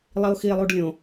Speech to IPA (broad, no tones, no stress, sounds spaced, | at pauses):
lˠ i o̯ x i e̯ lˠ u ɖ lʲ õ